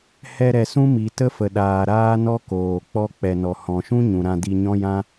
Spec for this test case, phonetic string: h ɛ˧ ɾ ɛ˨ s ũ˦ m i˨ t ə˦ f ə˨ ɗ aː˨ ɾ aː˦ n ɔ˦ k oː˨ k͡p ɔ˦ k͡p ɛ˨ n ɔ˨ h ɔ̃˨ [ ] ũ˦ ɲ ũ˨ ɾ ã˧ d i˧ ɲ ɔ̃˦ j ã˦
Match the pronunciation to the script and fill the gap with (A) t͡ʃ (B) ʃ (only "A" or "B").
B